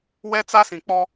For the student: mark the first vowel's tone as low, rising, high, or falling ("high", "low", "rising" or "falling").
high